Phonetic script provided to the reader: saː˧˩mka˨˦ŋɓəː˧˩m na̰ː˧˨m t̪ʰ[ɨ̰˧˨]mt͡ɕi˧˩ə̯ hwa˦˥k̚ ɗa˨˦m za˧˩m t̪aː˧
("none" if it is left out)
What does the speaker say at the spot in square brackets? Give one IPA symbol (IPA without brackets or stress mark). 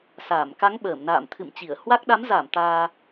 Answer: ɨ̰˧˨